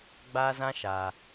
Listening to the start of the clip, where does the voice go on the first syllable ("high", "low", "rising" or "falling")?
high